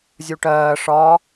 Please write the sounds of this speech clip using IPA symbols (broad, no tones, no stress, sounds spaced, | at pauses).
zʲ u ʈ ɜː ʂ ɒ